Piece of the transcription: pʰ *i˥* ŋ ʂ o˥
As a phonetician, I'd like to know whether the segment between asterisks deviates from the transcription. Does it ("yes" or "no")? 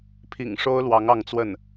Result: yes